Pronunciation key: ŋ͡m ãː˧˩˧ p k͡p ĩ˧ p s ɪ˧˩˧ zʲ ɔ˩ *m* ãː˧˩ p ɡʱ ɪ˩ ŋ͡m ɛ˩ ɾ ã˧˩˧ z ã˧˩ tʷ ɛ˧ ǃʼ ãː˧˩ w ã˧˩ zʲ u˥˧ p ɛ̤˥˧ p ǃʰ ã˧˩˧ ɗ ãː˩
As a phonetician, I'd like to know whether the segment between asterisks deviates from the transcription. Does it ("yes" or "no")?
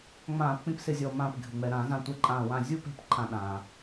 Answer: no